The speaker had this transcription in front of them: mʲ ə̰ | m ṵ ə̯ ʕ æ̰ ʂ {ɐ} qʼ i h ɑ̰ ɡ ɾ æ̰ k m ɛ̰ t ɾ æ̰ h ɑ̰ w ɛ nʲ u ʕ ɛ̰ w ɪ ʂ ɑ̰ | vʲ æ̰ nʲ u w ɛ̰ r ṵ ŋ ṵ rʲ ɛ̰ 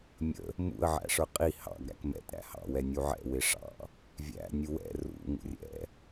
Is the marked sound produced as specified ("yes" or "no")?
no